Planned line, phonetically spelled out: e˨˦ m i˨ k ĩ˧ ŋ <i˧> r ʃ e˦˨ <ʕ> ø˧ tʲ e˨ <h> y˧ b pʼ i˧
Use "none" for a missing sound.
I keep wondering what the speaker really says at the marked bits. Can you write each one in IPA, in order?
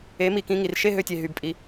i˨, ɦ, ɦ

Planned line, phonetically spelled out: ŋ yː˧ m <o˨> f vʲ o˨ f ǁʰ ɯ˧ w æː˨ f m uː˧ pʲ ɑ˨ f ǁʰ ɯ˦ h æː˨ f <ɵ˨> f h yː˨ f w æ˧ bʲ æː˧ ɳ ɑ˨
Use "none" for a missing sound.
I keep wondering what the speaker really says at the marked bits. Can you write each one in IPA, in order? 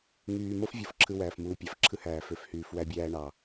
o˦, ø˨

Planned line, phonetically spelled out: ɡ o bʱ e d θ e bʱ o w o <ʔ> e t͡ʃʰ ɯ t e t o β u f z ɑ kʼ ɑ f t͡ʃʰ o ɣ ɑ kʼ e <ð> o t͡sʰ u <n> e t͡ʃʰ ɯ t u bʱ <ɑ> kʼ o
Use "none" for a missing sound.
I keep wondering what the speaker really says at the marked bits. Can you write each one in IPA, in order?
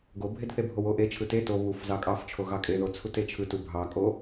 ʔ, ð, t, ɑ

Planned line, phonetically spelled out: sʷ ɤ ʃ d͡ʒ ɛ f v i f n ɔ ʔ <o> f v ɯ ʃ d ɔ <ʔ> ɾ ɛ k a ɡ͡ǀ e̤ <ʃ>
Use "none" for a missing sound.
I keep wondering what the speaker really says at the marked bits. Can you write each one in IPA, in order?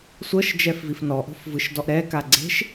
o̤, ʔ, ʃ

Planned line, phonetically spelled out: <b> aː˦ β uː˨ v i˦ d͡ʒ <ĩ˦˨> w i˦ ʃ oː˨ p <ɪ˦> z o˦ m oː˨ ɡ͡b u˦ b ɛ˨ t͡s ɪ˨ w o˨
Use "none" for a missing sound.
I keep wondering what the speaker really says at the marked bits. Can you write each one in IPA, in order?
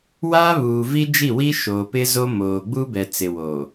w, i˦˨, ɪ˦

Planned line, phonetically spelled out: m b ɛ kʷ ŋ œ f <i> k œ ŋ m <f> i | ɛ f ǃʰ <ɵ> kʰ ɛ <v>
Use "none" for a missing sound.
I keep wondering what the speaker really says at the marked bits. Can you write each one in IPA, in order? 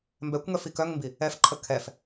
i, b, ə, f

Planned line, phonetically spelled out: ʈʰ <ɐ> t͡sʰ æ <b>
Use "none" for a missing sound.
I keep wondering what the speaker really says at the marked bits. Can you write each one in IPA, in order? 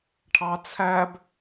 ɑ, b

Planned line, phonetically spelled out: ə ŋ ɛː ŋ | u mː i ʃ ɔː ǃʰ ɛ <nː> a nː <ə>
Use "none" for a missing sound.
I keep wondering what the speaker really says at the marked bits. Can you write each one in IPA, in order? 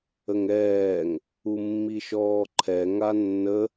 ŋ, ə

